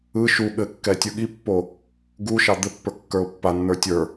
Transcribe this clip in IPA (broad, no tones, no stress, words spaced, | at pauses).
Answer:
ɯ ʃu ɠɘkːɛ tʲɯɠipːo | ɡuʃɑ d̪ɘpːə˞ kːə˞ʊ̯pːanːə˞ tʲə˞